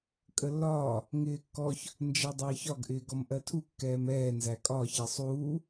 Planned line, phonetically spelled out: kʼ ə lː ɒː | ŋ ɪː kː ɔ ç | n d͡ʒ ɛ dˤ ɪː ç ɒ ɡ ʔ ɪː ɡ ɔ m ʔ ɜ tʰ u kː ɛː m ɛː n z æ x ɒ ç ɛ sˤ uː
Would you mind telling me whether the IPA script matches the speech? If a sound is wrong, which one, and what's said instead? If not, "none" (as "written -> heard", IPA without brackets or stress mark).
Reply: x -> kʼ